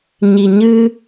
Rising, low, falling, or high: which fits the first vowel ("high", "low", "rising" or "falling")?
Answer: low